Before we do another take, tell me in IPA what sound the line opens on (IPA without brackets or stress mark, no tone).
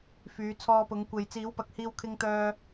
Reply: f